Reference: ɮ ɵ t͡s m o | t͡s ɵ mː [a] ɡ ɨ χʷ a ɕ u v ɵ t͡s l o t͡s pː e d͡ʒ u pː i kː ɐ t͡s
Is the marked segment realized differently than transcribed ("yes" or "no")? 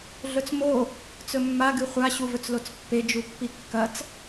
no